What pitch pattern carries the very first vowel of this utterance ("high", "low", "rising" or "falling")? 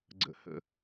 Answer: low